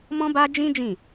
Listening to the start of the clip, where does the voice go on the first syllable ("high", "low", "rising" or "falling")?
high